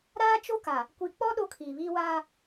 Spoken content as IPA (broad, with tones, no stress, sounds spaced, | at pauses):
ɾ aː˦ t͡ʃ o˦ k a˨ | kʷ i˨ k͡p ɔ˦ ɗ o˦ kʰ iː˨ β iː˦ w aː˦